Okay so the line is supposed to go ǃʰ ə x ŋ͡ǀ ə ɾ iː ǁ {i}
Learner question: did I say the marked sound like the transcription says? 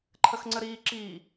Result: no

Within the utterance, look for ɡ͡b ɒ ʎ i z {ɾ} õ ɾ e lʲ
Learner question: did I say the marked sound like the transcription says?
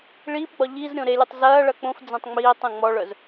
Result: no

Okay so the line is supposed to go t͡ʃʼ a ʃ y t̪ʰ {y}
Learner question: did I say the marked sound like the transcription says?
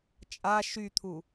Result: no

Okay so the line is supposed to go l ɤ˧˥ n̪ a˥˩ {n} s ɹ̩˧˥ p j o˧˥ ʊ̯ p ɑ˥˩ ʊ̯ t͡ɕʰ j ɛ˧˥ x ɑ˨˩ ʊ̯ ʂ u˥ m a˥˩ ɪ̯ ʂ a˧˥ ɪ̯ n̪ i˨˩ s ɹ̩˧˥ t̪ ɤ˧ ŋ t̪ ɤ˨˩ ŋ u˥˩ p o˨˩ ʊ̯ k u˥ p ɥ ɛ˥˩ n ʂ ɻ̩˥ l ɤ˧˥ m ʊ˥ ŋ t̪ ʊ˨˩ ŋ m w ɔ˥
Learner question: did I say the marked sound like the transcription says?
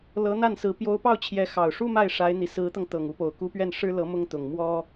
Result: yes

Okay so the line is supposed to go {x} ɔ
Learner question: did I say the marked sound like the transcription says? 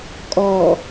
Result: no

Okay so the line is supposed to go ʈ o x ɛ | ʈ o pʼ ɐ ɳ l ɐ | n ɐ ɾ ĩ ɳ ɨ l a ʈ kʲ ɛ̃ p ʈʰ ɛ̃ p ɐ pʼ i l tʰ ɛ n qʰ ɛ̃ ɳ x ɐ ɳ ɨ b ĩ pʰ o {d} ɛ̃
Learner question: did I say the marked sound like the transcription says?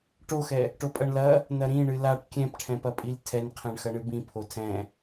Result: no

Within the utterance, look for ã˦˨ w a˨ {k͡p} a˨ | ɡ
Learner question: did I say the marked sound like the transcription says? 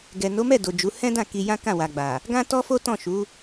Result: no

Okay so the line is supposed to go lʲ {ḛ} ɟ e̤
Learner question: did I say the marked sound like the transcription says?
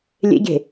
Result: yes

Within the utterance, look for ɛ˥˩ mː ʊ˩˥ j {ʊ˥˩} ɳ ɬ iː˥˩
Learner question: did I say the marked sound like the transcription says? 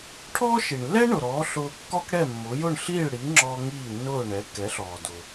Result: yes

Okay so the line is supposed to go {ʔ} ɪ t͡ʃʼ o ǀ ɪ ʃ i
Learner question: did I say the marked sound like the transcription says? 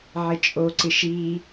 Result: no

